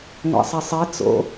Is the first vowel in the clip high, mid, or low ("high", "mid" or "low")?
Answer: low